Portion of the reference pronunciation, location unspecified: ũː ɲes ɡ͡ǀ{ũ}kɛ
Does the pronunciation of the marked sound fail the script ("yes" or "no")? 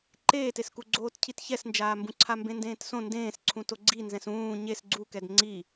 yes